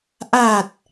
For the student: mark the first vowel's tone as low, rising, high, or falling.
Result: low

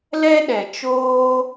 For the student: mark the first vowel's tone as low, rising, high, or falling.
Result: high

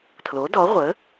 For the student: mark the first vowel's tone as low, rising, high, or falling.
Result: rising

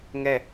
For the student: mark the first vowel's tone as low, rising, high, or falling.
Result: falling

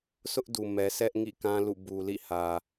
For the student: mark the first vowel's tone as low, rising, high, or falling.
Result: high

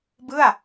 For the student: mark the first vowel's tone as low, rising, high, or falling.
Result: falling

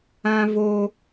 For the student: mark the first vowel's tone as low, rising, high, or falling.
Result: high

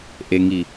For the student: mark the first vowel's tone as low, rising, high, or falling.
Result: low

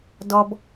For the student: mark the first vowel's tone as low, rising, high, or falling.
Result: high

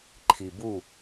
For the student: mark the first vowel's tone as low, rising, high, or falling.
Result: low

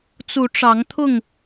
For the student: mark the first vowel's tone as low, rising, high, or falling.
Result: rising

